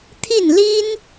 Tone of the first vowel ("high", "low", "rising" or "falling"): falling